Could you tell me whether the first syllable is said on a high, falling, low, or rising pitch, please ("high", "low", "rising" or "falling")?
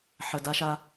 low